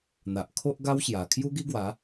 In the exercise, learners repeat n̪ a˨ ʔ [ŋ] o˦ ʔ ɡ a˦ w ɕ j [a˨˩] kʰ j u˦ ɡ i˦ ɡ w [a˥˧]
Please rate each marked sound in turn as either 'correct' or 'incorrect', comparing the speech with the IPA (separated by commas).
incorrect, correct, incorrect